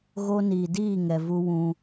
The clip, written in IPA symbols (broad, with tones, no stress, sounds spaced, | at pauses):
ɣ o˦ n iː˨ d iː˦˨ ŋ ɛ˨ v u˦ w ũ˦